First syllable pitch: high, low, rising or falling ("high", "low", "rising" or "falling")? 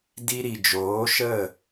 high